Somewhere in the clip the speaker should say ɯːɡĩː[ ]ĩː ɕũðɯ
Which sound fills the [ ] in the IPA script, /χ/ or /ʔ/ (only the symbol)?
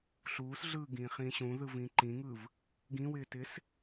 χ